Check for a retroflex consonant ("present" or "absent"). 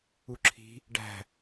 present